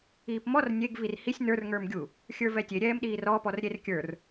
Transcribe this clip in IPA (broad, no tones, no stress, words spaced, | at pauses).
iːpmɔr nʲeɡ virhisʲ nə˞r ŋə˞mɡʲu | xʲə˞vɛtʲe ɾʲɛːmɗiːrɔ pɔrɾʲerkʲə˞r